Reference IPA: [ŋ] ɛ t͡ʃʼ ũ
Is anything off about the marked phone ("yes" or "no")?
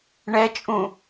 yes